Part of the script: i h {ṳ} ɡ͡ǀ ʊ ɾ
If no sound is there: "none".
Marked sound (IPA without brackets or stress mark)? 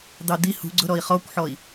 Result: ṳ